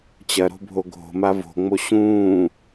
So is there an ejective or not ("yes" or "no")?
no